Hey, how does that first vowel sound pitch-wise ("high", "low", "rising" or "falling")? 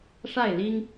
falling